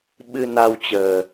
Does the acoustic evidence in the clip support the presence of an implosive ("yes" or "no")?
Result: yes